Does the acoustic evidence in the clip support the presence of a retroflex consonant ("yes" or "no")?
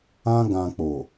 no